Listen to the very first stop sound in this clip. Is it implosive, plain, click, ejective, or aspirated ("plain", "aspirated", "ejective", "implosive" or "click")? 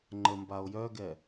click